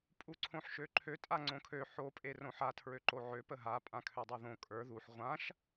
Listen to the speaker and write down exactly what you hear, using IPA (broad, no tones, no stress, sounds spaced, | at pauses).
pʼ u ǀʰ õ ħ ʃ ø ǃʰ ø tʼ a ŋ͡ǀ õ kʰ ø ħ o pʼ e r õ ħ a tʰ ɹ ø ǃ o ʕ ø p ə ɦ a pʼ ã kʰ ø dˤ o ð õ kʼ ə˞ ð u ħ ʁʷ ã ʃ